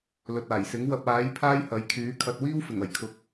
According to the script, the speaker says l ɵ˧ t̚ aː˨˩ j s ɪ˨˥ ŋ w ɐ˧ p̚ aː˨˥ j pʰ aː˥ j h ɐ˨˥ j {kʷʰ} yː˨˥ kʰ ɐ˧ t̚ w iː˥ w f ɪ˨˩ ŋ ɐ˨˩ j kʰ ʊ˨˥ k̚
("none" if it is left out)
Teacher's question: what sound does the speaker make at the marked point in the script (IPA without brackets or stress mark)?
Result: kʰ